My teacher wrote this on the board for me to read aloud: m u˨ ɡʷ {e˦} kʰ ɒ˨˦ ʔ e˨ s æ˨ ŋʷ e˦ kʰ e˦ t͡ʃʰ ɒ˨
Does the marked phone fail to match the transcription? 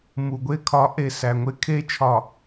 no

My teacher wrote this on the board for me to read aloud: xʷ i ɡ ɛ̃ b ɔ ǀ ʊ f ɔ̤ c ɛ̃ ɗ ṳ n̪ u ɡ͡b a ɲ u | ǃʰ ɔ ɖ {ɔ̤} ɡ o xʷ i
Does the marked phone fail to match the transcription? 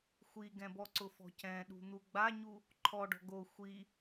no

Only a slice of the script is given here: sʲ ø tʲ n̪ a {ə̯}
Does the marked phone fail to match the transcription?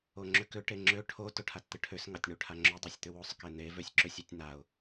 yes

